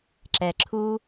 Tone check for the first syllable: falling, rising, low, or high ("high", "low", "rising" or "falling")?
low